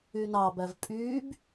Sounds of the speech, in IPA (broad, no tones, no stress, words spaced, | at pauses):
ynɑbæv pʼyːb